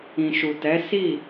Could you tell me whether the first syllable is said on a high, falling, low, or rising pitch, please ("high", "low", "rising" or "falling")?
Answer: low